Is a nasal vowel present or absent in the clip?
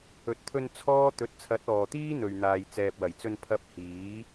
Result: absent